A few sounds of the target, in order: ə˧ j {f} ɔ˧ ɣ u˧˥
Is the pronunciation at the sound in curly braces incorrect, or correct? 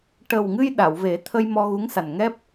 incorrect